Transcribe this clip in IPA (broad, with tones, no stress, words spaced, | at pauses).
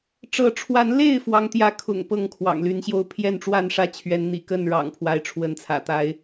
ʈ͡ʂɤ˨˦ʈ͡ʂʰwa˨˦nle˥˨ɪ̯ fwɑ˦ŋt̪jä˦kʰʊ̰˨˩ŋ pɤ˥˨ŋkʰwɑ̰˨˩ŋly˨˦nɕjo˥˨ʊ̯ pʰjɛ˥˨nʈ͡ʂwa˥˨nʂä˥˨ t͡ɕʰɥɛ˨˦nn̪ḭ˨˩kə˥˨n ɻɑ̰˨˩ŋpʰwa˨˦ɪ̯ʈ͡ʂʰwə˨˦nt͡sʰä̰˨˩ t̪a˨˦ɪ̯